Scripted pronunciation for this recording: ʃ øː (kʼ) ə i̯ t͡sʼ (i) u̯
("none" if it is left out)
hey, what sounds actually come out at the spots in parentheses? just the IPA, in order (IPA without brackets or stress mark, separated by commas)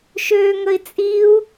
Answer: ŋ, i